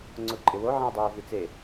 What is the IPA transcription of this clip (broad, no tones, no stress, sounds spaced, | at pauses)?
ŋ͡ǀ ʊ ǃʼ ɪ w o ʕ ĩ w dˤ oː v i t͡s e